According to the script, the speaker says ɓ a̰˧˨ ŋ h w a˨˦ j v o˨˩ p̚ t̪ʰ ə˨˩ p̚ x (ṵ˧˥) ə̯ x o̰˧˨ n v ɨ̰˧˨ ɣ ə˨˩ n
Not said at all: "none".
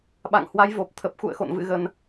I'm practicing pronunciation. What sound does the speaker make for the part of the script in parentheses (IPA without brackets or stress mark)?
ṵ˧˨